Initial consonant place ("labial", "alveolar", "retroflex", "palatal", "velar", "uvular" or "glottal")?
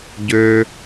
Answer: palatal